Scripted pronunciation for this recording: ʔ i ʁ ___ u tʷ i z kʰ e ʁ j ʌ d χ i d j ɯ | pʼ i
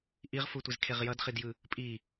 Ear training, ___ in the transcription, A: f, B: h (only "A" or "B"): A